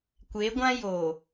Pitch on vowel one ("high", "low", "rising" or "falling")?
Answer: rising